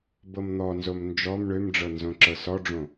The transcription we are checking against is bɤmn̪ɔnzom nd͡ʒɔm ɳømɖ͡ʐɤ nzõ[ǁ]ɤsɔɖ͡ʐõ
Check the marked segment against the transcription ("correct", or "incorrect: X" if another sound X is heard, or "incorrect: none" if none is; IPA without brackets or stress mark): correct